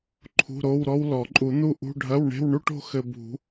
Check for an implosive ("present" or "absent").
absent